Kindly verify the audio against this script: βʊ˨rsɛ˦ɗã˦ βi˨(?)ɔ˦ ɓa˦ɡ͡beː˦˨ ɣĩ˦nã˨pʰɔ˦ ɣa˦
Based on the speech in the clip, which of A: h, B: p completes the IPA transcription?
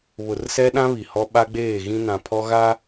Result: A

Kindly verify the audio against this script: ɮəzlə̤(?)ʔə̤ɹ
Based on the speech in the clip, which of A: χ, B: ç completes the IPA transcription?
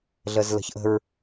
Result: B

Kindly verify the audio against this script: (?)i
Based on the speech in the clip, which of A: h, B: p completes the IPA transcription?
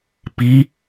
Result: B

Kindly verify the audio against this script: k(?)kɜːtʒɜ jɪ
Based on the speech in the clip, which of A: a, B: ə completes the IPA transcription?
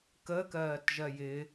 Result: B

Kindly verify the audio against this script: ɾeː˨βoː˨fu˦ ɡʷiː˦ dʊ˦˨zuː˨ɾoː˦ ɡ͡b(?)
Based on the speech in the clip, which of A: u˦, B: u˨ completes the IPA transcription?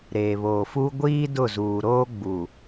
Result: B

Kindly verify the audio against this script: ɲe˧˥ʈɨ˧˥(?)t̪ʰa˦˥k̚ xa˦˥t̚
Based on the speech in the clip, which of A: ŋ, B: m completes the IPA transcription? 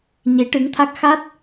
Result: A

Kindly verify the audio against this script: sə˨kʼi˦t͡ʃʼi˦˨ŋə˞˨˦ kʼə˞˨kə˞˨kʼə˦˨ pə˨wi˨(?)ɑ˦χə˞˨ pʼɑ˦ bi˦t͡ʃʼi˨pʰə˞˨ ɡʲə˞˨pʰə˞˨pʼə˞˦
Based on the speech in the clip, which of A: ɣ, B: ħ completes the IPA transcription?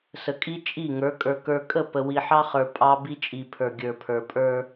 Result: B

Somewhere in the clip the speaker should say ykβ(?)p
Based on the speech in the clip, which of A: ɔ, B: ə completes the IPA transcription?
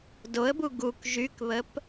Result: B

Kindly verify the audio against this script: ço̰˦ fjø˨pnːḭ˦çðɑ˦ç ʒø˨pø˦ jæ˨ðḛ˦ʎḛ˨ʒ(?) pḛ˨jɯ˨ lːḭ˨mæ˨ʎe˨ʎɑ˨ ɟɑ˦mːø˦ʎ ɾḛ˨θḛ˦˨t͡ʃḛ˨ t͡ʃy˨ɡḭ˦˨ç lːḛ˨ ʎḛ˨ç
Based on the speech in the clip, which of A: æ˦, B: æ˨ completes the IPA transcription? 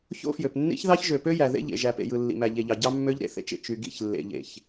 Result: B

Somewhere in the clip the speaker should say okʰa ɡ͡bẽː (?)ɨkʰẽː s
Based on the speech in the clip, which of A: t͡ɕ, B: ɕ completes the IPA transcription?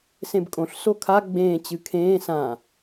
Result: A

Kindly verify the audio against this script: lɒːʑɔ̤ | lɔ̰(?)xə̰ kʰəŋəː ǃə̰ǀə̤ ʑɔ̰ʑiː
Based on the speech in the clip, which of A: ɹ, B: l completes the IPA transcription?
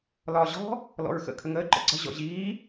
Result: A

